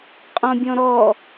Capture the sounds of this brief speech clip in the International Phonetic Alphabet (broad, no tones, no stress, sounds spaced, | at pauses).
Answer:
qʼ ɔ̃ bʲ ɔ̃ ɾ ɔ